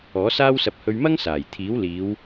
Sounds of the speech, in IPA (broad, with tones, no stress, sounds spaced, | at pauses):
ɔː˨˥ s aː˥ w s ɐ˧ p̚ h ɵ˧ ɥ m ɐ˥ ŋ s aː˨˩ j t̪ʰ iː˨˥ w l iː˨˧ w